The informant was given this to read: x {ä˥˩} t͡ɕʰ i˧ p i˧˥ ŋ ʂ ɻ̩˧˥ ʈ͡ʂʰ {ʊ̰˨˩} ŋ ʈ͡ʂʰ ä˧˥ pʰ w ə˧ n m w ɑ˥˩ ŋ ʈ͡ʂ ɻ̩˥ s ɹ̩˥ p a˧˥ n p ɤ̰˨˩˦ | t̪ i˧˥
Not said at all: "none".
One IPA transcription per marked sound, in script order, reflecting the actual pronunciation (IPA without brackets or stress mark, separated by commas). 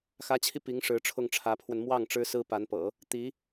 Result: ä˧˥, ʊ˥˩